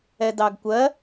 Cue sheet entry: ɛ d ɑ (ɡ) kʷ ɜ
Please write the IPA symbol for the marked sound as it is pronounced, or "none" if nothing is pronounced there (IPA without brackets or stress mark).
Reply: ɡ